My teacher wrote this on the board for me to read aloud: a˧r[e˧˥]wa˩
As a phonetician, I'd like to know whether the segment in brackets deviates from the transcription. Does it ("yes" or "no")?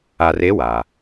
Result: no